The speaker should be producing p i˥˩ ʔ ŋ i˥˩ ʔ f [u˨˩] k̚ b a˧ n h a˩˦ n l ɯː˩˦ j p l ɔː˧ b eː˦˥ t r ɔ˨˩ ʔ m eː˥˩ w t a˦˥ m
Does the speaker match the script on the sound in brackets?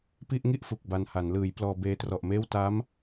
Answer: yes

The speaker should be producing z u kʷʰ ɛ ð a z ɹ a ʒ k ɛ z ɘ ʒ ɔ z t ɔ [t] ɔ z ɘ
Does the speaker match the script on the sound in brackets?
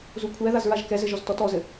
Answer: yes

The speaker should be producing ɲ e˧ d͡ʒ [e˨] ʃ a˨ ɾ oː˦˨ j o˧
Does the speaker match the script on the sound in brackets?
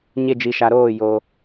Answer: no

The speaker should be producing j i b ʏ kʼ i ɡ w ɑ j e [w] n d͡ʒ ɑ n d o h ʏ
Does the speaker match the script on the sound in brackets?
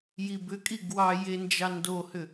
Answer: no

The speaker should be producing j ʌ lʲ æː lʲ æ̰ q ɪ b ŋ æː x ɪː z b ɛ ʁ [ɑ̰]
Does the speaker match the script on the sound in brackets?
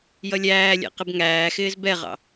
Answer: yes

